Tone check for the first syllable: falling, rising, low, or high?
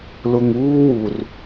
low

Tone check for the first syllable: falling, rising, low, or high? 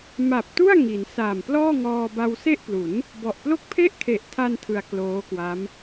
low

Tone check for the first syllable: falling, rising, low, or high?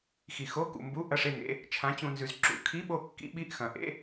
low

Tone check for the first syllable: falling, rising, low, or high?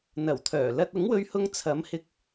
low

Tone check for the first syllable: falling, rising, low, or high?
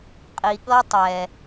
low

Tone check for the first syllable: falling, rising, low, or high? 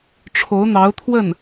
rising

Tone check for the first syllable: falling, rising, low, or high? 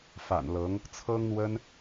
low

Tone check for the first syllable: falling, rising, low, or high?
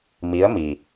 rising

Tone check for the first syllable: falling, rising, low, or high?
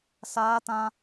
high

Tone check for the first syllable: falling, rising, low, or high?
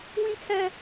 high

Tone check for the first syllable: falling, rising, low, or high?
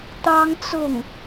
high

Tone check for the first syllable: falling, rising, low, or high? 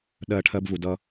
low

